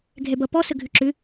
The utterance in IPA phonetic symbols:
ɡʱ ɛ b ʌ p ɔ s ə ɡʱ ʏ ǁ ʏ

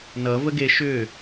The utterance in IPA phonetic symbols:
n ʌ v ə ɡ e ʃ ʏː

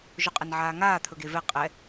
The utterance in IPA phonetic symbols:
ʒ ʊ qʼ ɛ n ʕ aː ŋ aː t̪ʰ ɵ ɡ e v ɛ qʼ ɛ

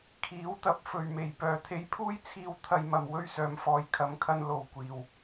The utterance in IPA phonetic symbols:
kʰ iː˨˥ w t̪ ɐ˨˥ p̚ f ɵ˨ ɥ m e˨˩ j p œː˨˩ t̪ʰ e˧ j pʰ uː˥ j t͡sʰ iː˧ w t̪ʰ ɐ˧ j m ɐ˨ m w ɵ˥ ɥ s œː˨˧ m f ɔː˨˧ j kʰ ɐ˨˥ m kʰ ɐ˧ n l o˨ w kʷ iː˨ w

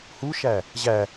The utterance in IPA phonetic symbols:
h u ʃ æ | ʑ æ

